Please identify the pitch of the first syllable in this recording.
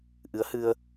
rising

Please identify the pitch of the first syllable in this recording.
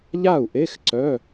falling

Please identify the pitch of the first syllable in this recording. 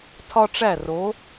high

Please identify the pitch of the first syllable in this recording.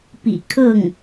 low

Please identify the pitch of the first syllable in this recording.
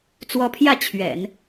rising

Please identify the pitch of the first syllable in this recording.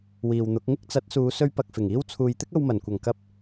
low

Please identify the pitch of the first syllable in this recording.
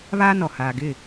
high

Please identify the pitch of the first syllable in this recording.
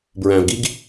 low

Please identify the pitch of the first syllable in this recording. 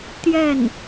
falling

